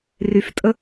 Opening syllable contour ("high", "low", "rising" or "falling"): low